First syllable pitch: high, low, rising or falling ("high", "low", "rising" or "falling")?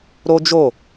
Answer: high